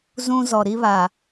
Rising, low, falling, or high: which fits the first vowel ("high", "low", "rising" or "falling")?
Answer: high